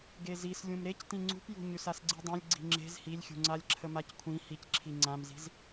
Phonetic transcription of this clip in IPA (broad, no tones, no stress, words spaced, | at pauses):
ɡezis lʲũmɾec tĩŋ͡ǀṳpjṳ ɲʉsasɡ͡ǀidˤãlʲ ɡ͡ǀi̤ŋ͡ǁe̤z hilʲxʲṳŋ͡ǀalʲ ǁʰəmackʷʰĩ hicǁʰi ŋ͡ǀãmzi̤z